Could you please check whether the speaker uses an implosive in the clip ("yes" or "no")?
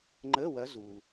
no